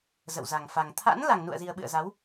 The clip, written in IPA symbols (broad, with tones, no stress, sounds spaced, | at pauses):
z ə̰˧˨ w z a˨˩ ŋ f a˨˩ ŋ t̪ʰ a̰˧˥ n l a˨˩ ŋ n ṵ˧˨ ə̯ z i˨˩ ə̯ ɓ ɨ̰˧˨ ə̯ z a˨˦ w